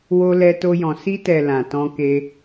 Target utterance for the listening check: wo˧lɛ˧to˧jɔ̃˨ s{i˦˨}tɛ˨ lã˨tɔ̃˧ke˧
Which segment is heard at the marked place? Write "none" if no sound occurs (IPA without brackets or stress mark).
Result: i˧